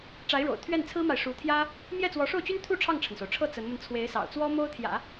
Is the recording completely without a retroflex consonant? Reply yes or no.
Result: no